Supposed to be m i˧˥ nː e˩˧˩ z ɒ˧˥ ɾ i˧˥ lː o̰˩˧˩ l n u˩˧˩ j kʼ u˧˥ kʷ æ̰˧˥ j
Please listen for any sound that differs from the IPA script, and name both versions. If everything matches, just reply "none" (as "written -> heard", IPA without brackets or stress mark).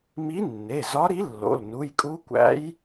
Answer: none